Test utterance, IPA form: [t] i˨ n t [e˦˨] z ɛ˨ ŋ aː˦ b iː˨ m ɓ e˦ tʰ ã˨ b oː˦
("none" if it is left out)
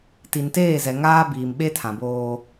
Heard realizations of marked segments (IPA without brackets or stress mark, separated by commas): t, eː˦˨